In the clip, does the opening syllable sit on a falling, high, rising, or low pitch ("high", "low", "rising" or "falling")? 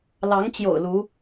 rising